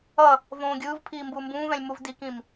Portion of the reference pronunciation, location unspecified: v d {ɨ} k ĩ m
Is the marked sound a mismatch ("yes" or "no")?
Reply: yes